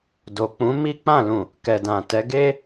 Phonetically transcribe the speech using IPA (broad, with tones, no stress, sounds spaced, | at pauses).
d o˨ k͡p ũ˨˦ m i˦ k͡p ã˦˨ l ũ˨ | k ɛ˨ d ã˨ t ɛ˨˦ ɡ e˦